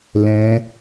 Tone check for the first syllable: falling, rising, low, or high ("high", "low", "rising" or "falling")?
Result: high